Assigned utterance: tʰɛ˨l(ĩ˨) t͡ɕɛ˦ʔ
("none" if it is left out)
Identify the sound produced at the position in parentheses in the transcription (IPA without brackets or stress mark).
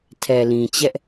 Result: ĩ˨